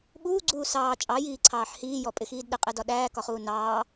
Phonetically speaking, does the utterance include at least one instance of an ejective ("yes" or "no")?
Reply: yes